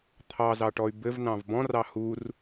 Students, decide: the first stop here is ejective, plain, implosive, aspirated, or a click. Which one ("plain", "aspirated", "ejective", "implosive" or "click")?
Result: aspirated